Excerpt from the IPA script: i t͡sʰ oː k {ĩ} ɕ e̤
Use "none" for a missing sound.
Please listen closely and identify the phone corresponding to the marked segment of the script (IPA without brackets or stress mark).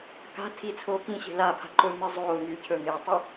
ĩ